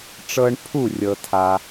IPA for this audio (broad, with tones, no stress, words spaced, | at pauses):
ʈ͡ʂɤ˧ɳpʰu˥˩ rʲɤ˩tʰa˩